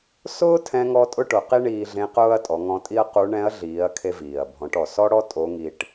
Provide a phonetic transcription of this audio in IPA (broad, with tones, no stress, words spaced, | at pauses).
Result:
sʊː˥tʰɛ̃˧ŋɔ˧ tʼʊ˥ʈʊ˩˧qi˥ ɳiː˧ɮẽ˧˥qʊː˥ɐ̯ tʼɔ˩˧ŋɔ̃˧tʼi˥ɐ̯qu˧˥ ɳɛ̃˧˥ɐ̯ɮiː˩˧ɐ̯ kʰe˧viː˩ɐ̯bʱɔ̃˩˧ʈɔ˩ sɔ˥ɽɔ˥ tʼo˧˥ŋi˧ʈ